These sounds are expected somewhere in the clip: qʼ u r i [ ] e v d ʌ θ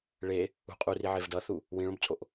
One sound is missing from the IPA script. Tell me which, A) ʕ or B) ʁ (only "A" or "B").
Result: A